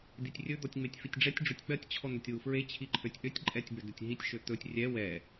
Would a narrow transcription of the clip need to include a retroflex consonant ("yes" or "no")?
yes